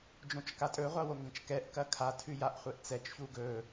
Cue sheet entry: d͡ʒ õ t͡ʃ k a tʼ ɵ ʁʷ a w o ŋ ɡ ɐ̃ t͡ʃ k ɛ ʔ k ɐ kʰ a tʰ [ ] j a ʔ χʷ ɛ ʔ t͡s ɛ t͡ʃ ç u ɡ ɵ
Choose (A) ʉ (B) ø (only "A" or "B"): A